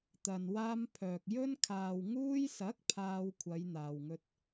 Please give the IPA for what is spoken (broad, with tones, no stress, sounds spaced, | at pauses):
t̪ ɐ˨ n w aː˧ m pʰ œː˨ k̚ j ɵ˧ n kʰ aː˨ w ŋ uː˧ j s ɐ˨˥ k̚ pʰ aː˥ w kʷʰ ɐ˨˧ j n̪ aː˨ w ŋ ɵ˧ t̚